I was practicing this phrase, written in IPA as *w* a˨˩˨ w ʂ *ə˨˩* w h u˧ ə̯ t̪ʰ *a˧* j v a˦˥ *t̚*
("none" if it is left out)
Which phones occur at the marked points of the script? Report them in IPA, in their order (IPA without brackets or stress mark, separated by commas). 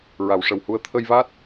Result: ɹ, ə˨˩, ə˧, t̚